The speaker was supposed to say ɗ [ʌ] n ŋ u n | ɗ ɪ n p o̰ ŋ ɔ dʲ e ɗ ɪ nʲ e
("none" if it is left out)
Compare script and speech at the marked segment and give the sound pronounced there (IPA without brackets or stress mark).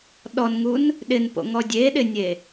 ɔ